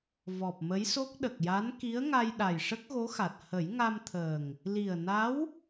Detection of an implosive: present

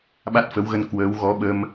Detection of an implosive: present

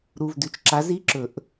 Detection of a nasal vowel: absent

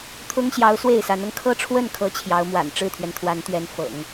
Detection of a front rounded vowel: absent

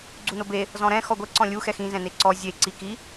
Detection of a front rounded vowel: absent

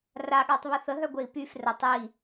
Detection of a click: absent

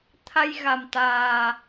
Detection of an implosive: absent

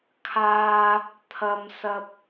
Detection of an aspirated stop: present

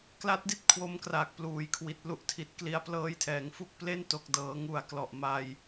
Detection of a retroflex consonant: absent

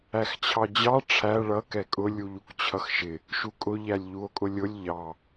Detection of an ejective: present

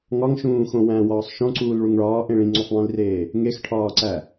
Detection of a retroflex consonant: present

